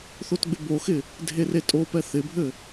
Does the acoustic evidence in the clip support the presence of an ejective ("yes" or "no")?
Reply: yes